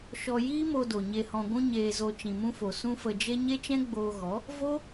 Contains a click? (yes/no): no